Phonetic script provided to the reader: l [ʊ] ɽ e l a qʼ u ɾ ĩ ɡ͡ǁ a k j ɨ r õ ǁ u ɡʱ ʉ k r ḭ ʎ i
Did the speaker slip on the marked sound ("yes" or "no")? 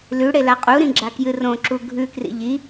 yes